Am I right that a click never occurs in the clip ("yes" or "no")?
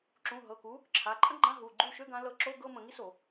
no